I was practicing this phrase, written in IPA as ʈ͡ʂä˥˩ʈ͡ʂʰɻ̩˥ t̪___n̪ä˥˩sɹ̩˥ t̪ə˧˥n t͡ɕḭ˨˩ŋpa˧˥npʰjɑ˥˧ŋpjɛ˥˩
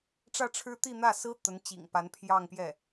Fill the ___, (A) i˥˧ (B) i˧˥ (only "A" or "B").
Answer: A